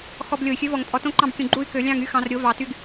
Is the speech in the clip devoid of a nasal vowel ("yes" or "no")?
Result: no